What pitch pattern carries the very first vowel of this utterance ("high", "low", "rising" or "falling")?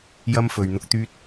high